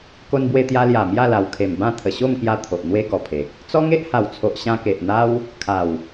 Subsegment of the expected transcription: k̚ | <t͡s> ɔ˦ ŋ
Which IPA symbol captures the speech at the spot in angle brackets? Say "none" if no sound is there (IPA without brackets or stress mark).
t͡s